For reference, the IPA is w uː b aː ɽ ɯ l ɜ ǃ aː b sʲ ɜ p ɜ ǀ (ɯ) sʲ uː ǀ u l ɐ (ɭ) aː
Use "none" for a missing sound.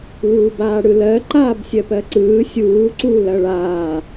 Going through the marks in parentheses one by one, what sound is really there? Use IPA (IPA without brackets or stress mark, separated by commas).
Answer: ɯː, ɭ